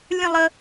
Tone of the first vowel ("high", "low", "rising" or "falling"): falling